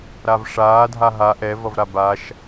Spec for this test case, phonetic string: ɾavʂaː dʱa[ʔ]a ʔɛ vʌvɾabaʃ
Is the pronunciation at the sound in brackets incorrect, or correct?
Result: incorrect